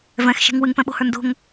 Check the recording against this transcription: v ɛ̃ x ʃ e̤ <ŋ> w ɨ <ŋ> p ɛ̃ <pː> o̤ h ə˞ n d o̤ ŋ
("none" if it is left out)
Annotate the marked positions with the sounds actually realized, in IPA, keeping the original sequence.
ŋ, ŋ, ɓ

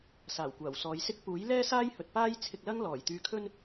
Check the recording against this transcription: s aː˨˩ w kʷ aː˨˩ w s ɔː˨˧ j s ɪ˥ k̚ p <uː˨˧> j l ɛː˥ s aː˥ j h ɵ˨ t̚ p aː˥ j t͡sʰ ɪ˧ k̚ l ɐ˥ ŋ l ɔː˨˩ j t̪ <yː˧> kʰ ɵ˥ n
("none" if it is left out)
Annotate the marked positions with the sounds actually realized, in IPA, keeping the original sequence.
uː˨˥, yː˧

